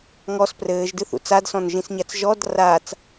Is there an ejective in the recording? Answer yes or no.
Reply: no